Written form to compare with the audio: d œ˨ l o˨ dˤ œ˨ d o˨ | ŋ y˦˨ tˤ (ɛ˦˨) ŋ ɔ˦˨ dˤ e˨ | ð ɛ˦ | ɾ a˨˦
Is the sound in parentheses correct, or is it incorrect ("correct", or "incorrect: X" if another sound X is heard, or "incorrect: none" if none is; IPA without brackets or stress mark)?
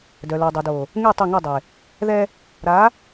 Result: incorrect: e˦˨